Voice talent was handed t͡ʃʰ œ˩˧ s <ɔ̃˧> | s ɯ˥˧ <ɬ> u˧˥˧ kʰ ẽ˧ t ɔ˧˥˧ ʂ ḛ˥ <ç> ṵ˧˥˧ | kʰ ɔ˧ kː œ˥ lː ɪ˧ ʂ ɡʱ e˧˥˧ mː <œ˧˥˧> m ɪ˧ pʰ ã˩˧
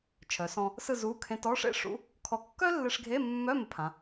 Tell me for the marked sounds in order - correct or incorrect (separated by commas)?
correct, incorrect, incorrect, correct